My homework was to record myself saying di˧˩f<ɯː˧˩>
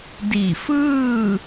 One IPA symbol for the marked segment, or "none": ɯː˥˨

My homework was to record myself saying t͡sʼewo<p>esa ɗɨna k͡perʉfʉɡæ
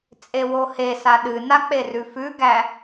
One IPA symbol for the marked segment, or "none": h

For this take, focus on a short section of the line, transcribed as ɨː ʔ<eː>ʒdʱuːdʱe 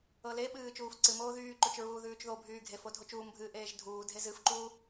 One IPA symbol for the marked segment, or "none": eː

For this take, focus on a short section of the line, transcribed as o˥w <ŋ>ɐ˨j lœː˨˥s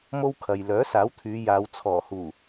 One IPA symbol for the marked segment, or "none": kʰ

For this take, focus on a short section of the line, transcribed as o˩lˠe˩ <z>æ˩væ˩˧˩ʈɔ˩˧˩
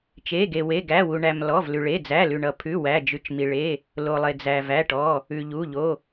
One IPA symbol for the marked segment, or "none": d͡z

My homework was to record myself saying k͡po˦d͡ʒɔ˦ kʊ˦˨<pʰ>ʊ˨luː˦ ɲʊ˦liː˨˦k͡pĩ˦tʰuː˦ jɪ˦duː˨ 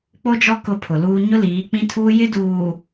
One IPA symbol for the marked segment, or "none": pʰ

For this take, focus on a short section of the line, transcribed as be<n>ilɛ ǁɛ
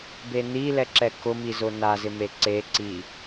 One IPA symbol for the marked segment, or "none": n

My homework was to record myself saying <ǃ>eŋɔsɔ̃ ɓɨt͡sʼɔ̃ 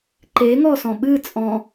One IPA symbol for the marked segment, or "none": ǃ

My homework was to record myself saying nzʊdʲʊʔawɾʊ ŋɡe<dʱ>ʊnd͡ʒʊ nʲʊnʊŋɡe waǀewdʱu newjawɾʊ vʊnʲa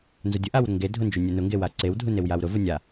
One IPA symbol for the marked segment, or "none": dʱ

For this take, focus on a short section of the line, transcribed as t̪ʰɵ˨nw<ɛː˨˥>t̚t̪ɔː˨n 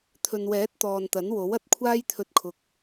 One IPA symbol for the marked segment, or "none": ɛː˨˥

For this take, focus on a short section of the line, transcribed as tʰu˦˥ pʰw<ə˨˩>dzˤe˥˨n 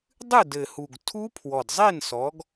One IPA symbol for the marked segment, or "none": ɔ˨˩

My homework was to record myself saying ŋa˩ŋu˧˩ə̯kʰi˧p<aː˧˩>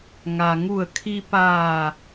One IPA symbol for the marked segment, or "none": aː˧˩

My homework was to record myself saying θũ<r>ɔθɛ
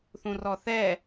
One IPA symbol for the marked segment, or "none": r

